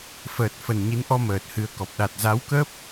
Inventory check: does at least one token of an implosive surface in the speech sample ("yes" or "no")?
yes